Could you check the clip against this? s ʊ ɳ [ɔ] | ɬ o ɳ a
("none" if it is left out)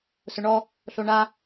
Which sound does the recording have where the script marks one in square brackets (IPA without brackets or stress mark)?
ɔ